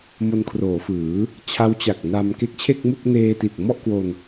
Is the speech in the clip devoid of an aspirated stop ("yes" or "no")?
no